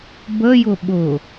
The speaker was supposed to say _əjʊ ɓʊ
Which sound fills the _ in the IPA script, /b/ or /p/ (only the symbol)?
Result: b